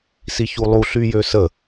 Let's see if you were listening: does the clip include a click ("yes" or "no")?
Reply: no